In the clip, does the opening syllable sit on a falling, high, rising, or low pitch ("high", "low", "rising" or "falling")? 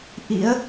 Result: rising